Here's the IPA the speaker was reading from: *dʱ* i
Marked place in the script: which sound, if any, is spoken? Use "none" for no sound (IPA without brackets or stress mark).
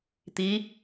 t̪